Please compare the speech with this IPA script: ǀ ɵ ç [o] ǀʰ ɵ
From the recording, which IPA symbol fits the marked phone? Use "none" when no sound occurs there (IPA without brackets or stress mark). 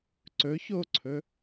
o